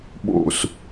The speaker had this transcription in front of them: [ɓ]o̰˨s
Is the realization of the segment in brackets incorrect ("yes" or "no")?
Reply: no